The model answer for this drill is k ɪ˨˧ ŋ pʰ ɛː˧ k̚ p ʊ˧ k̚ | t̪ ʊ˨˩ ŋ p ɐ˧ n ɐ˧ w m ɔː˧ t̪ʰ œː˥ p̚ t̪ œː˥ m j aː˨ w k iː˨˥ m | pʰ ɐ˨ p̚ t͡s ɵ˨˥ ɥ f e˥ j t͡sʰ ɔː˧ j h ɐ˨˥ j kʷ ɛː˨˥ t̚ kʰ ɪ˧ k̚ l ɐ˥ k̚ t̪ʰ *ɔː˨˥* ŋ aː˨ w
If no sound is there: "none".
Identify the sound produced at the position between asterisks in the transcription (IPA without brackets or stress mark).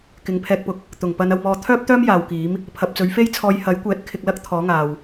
ɔː˨˥